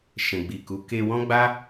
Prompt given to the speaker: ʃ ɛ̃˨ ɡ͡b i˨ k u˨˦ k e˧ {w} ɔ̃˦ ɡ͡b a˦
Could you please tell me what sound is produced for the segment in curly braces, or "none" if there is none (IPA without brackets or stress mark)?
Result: w